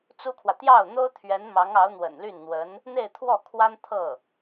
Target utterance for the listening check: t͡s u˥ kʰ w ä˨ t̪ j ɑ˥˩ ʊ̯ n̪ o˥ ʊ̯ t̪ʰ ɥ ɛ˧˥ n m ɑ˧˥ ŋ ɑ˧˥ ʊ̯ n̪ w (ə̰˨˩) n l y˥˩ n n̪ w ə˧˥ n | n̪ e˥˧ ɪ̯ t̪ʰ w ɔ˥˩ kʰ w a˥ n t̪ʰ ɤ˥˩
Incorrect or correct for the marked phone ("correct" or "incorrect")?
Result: correct